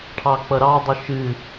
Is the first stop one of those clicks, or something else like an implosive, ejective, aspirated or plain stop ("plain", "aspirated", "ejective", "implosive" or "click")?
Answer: aspirated